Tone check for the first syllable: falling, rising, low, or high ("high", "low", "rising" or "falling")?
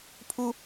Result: high